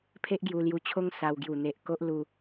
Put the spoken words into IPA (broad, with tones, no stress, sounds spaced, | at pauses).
pʰ e˦ ʔ ɡ j u˧ l j u˧ t͡ɕʰ o˦ ŋ s a˧ w ɡ j u˨˩ n̪ e˨ ʔ k o˦ ʔ l u˧